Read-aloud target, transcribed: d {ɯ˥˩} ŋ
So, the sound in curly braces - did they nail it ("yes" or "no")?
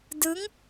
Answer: no